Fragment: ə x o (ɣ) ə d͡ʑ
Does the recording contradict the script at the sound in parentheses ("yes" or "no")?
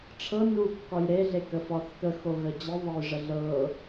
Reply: no